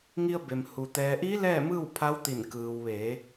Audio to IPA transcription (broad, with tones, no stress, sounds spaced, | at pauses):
ŋ i˧ ə̯ b e˩ m h u˩ t̪ ɛː˩ ʔ i˧˥ l ɛː˥˨ m ɯː˥˨ w pʰ a˧˥ w t̪ i˧˩ n k ɯː˩ w ʋ eː˩˧